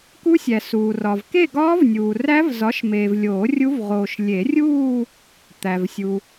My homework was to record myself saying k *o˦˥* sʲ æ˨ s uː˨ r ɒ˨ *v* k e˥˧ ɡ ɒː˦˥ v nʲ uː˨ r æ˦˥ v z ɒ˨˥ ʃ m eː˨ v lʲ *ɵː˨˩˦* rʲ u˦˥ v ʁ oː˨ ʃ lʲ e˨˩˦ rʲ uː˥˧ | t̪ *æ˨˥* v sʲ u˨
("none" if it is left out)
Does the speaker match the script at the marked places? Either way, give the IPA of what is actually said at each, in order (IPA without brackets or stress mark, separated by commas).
u˦˥, v, oː˨˩˦, æ˨